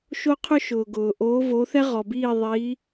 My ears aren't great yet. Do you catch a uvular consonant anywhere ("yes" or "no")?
yes